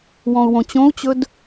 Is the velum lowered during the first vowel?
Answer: yes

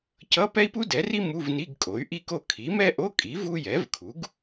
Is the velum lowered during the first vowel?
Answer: no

